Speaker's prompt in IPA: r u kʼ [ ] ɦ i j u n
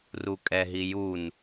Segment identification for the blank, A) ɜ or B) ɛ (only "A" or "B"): B